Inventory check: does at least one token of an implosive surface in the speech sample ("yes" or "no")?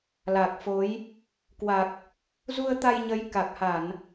no